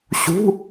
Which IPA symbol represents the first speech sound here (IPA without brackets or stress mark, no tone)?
ɕ